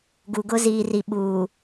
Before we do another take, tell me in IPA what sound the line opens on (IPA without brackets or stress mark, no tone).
ɡ